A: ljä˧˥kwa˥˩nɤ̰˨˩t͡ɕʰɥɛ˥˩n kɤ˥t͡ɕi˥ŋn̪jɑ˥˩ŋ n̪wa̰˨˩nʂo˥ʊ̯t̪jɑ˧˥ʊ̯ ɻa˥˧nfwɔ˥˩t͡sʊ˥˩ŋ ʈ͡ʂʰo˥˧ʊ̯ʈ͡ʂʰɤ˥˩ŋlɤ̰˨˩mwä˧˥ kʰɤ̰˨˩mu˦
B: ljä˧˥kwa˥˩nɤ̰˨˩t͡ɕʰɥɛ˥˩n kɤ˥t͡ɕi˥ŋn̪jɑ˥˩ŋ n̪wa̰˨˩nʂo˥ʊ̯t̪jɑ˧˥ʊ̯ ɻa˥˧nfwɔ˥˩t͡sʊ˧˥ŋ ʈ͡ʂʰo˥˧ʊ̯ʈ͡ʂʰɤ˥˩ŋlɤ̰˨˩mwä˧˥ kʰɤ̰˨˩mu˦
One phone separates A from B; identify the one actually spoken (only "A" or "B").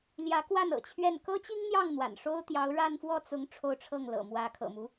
B